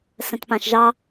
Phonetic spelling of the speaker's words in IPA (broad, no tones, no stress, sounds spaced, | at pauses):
s ə̃ t p ã ʃ ʒ ɑ